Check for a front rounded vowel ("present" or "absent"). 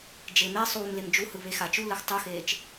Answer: absent